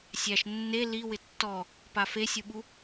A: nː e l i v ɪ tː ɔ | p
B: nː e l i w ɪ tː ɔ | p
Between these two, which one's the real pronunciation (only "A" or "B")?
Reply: B